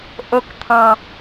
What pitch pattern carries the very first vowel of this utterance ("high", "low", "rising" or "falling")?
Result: low